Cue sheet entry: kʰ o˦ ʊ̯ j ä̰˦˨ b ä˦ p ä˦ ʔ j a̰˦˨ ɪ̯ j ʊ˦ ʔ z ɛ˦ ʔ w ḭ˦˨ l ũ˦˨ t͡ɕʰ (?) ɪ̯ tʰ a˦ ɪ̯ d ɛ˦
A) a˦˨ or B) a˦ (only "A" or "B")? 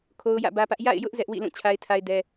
B